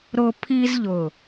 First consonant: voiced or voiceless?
voiced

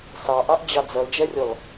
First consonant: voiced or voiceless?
voiceless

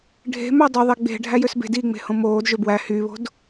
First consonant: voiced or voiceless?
voiced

